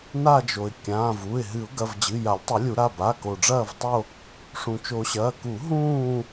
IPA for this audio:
n a˦˨ d͡ʒ o˩ ɪ̯ kʲ ãː˩˧˩ v u˩˧˩ ɪ̯ ɦ ɨ˨˩˦ ʊ̯ ɡ ɐ˩˧˩ v d͡ʑ ɨ˩˧˩ j a˨˩˦ lʲ tˤ ɨ˨˩˦ lʲ u˨˩˦ ɾ a˩˧˩ b a˩˧˩ k o˩ ɖ͡ʐ ɐː˦˨ v tˤ o˦˨ | ʂ ũ˩ t͡ʃ o˨˩˦ ɕ ɐː˩˧˩ k u˨˩˦ ɦ ũː˦˨

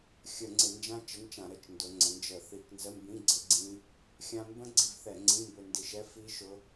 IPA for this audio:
xʲ ə˧˩˧ ŋ͡ǀ ɪ˧˩˧ n d͡ʒ ã˦˥ t͡ʃ ə˧˥˧ n t͡ʃ ã˧˩˧ ɾ ə˧˥˧ t͡ʃ n d ʊ˩˧ ŋ͡ǀ ə̃˩˧ n d͡ʒ ə˧˩˧ θ i˧˩˧ k n z ə˧˥˧ m b ĩ˧˥˧ ɡ͡ǀ ə˦˥ ɡ͡ǀ ĩ˦˥ | xʲ ã˧ m b ə̃˦˥ ɡ͡ǀ i˧ v θ ɛ˧˩˧ ŋ͡ǀ ĩ˧˥˧ m b ø˧ n d i˧˩˧ ʃ ɛ˧˥˧ f i˦˥ ʃ ʊ˦˥

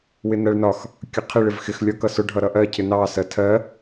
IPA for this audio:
w ɪ n ɜ ɭ n ɒ x | kʲ ʌ qʰ ɪ ɭ ɪ v x ɪ x lʲ ɒ k ʌ s ʊ ɖʱ ʌ ɾ ʌ ʔ ɜ cʰ ɪ n ɑ s ɜ tʰ ɜ

